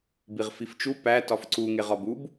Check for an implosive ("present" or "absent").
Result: absent